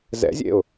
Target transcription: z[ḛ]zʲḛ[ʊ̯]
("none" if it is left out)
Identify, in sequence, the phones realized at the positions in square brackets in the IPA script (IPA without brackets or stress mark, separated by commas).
ɛ̰, ʊ̯